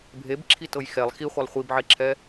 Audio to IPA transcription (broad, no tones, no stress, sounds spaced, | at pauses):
bʱ e b ǁʰ i t ɤ j x ɛ lˠ x i χʷ a lˠ χʷ i b ʕ e ǁʰ ɛ